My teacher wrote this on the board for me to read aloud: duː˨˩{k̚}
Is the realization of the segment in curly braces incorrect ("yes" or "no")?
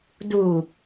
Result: no